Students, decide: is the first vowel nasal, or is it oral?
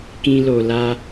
nasal